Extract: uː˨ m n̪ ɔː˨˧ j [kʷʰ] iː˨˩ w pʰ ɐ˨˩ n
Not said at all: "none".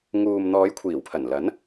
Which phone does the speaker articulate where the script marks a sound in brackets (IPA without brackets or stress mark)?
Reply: kʷʰ